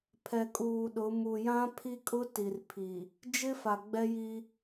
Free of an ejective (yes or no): no